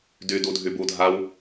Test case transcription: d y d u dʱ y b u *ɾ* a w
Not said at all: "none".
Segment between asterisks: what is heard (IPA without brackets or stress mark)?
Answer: dʱ